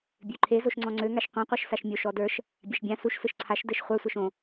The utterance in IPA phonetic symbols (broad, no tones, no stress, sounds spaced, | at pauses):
bʲ ø ǃʰ e z o ʃ ŋ͡ǀ ɔ̃ ŋ͡ǀ ø ŋ a ʃ qʷ ɛ̃ qʷ ə˞ ʃ s a ʃ mʲ o ʃ ɔ d ə˞ ʃ | bʲ a ʃ bʲ ã s u ʃ s ɯ ʃ ǀʰ a ʃ d ɘ ʃ χʷ ə˞ sʷ ə˞ ʃ õ